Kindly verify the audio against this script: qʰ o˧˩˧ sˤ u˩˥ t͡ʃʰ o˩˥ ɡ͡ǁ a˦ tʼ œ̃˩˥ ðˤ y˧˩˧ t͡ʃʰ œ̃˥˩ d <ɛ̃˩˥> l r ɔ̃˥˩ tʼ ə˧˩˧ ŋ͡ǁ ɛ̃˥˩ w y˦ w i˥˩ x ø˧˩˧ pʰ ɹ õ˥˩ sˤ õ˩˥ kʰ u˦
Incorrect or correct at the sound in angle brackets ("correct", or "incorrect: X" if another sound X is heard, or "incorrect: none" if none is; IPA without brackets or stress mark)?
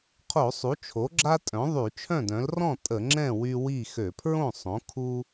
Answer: incorrect: œ̃˩˥